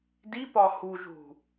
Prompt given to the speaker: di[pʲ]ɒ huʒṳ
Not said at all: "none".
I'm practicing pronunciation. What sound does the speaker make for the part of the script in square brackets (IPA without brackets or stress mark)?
p